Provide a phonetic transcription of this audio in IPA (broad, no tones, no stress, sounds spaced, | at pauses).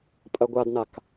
pʼ ɐ ɡʷ a d n a k